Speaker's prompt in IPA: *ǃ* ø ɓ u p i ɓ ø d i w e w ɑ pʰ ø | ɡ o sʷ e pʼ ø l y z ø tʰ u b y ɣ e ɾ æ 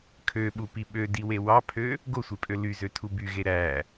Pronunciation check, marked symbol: incorrect: kʰ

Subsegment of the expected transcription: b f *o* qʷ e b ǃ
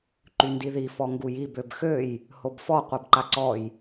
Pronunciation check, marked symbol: incorrect: ɔ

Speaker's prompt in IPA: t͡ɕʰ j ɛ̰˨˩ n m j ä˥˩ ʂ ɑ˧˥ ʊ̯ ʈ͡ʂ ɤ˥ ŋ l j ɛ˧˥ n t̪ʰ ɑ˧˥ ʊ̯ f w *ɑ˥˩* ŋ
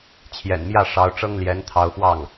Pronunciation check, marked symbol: correct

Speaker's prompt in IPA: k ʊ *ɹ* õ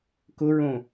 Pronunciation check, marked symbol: correct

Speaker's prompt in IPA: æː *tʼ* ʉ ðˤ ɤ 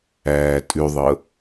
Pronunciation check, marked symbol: correct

